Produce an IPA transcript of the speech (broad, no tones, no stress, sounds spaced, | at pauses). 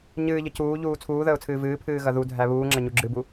ɲ ɨː ʎ ə c uː ʎ uː t͡sʰ uː ð əː ʊ̯ t͡sʰ ɨː v ɨː pʰ ɨː ɣ ɐ ð u dʱ æ β uː ŋ͡ǁ ɐ ɲ u ɡ͡ǁ ɨ b u